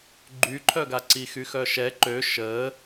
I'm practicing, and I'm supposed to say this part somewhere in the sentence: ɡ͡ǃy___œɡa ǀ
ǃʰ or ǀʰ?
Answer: ǃʰ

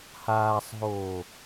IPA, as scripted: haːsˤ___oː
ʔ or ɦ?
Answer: ɦ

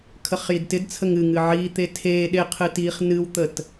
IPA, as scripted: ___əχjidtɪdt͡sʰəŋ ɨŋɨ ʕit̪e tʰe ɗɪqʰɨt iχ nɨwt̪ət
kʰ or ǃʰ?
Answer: kʰ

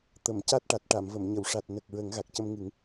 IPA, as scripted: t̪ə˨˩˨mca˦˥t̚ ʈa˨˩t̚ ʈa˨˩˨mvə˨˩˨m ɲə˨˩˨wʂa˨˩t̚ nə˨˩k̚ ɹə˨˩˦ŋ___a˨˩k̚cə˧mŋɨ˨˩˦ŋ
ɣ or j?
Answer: ɣ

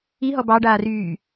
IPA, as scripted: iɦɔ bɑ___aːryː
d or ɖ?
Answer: ɖ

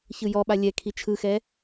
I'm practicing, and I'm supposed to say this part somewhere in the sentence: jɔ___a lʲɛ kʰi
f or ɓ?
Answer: ɓ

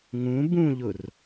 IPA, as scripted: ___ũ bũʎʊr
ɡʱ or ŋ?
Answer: ŋ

